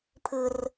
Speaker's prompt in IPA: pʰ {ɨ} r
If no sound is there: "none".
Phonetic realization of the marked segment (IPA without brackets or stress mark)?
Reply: ɨ